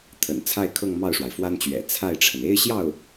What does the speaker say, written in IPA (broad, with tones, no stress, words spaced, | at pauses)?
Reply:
t̪ʰə̰˨˩nt͡sʰa˥˧ɪ̯kʰɤ˥˧ŋ mɑ˥˩ʊ̯ʂwa˩ɪ̯fwa˥nt͡ɕɥɛ̰˨˩ t͡sʰa˥˩ɪ̯ʈ͡ʂʰə˩n e˥ɪ̯ɕjɑ˥˩ʊ̯